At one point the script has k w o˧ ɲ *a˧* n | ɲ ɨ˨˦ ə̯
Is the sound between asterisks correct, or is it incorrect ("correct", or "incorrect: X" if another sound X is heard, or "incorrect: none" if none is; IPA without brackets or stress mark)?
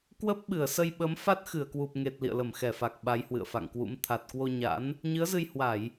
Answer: incorrect: a̰˧˥